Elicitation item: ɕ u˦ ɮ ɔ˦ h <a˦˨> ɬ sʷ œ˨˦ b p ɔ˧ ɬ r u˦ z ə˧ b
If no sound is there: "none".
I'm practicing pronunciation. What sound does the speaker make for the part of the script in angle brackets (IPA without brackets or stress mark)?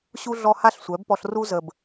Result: a˦